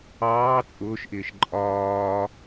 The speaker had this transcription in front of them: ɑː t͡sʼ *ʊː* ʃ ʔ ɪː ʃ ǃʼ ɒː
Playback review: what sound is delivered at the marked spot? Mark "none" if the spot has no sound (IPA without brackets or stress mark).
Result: ʊː